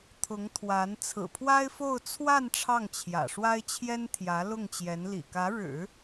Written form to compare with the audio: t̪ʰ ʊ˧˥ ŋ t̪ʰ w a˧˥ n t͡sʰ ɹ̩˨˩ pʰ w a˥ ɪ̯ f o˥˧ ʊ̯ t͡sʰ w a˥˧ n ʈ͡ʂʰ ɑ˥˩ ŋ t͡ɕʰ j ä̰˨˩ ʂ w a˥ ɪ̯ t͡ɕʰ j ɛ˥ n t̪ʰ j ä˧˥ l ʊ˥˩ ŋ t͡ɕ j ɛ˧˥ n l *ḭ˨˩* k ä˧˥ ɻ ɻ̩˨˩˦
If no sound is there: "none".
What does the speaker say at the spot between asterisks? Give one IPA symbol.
ḭ˨˩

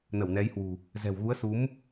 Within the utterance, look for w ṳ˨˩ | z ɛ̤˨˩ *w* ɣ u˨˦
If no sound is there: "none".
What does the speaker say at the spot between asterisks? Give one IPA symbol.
w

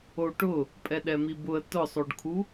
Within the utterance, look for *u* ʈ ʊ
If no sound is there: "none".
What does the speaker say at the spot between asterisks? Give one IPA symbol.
o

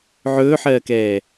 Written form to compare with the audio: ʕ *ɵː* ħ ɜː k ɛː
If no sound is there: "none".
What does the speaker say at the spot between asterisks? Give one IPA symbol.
ɵː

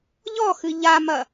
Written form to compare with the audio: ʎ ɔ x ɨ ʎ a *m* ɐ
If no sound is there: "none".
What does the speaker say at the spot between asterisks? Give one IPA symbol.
m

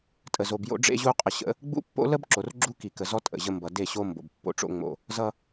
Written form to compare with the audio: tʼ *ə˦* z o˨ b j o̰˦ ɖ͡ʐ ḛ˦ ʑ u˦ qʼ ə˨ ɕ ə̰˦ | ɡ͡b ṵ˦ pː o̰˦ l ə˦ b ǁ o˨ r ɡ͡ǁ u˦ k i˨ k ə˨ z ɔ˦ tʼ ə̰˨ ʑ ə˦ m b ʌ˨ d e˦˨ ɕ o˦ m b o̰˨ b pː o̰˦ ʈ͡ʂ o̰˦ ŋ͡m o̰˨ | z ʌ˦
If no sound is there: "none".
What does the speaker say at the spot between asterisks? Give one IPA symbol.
ə˨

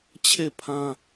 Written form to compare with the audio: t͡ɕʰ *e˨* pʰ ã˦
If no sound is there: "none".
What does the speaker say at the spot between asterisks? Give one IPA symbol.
e˦˨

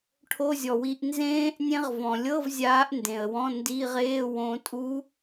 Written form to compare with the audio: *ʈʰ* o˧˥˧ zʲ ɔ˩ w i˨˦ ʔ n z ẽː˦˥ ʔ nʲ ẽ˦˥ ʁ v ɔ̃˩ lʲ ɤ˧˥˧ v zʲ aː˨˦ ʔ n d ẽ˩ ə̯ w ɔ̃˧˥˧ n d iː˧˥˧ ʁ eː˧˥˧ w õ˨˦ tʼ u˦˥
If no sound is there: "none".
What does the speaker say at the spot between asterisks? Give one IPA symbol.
ʈʰ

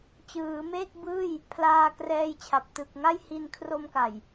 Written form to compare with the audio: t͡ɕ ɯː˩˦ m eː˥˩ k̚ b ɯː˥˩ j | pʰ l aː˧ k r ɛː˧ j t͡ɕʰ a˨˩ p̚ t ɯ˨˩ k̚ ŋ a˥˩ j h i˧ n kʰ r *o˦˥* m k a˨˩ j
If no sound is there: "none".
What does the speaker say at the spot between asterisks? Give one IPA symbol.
o˧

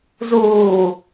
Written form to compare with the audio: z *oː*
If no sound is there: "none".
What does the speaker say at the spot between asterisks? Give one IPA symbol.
uː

